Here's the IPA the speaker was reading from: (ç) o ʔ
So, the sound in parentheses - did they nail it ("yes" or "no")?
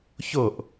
yes